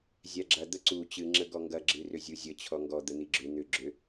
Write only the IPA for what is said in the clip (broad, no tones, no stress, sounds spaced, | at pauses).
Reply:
zʲ a ɡ͡ǁ ɐ d̪ ə ǀ u t͡ɕ ɨ ŋ͡ǁ ə ɡ ɔ ŋ ɡ ɐ ɡ͡ǁ ɨ r ʏ zʲ u zʲ ə t͡ɕʰ ɔ ŋ ɡ ɔ d̪ ə n̪ i ɡ͡ǁ ʏ n̪ ʏ ɡ͡ǁ ʏ